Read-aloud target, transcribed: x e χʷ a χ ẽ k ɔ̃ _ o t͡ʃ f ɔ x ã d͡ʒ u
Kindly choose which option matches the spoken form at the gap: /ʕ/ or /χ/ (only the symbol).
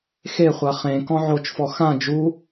ʕ